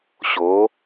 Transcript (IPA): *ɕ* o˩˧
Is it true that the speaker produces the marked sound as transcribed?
yes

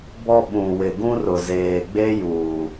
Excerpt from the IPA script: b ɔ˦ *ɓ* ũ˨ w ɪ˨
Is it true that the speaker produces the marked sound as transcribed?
yes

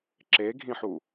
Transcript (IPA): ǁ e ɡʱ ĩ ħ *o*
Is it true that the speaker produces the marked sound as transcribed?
no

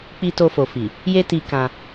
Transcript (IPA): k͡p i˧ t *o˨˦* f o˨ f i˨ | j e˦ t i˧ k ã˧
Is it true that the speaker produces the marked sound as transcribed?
no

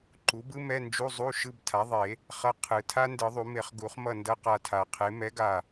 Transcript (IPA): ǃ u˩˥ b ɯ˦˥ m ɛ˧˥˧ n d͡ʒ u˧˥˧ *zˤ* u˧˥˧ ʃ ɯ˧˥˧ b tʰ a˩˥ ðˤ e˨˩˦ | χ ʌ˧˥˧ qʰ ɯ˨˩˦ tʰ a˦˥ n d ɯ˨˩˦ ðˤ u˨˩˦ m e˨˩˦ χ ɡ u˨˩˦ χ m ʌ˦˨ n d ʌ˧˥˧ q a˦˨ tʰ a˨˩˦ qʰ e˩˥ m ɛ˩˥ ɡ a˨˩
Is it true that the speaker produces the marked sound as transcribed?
yes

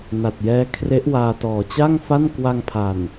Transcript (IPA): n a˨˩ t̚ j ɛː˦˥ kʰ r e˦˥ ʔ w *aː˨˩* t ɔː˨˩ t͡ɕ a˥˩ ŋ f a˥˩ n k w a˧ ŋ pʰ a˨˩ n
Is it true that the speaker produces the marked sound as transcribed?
no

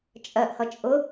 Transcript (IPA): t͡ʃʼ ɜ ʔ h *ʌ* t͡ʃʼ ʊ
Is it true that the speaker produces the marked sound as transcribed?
yes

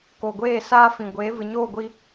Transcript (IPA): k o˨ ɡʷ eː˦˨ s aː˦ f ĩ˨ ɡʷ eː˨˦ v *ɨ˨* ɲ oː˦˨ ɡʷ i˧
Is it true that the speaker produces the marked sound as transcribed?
yes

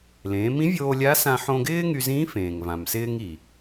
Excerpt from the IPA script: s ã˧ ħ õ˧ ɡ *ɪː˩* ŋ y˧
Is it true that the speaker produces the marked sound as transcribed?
no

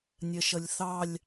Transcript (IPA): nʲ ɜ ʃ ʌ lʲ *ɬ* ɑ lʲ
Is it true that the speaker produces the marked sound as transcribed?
no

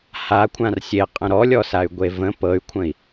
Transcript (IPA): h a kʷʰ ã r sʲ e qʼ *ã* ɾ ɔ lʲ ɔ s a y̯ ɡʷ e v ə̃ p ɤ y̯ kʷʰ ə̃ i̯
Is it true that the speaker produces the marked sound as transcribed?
no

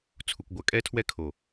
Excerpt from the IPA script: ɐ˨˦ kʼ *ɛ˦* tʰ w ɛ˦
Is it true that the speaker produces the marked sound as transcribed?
yes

